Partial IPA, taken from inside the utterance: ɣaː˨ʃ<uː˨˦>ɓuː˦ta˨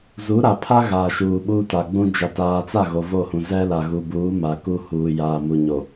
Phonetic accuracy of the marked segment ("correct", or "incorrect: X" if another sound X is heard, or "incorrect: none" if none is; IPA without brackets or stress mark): incorrect: uː˨